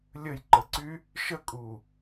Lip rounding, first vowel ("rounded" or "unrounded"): unrounded